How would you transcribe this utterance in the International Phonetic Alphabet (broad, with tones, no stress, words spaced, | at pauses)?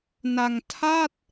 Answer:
na˧ŋtʰa˥˩t̚